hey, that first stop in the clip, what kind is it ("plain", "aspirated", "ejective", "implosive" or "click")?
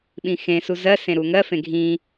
implosive